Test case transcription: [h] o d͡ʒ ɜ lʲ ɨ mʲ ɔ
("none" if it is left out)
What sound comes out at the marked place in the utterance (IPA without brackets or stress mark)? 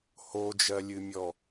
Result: h